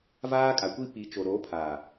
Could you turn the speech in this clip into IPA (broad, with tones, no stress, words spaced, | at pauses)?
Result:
vaː˦kʼa˨kʷi˦ pi˨˦t͡ʃo˨ ɾo˨˦pʰa˨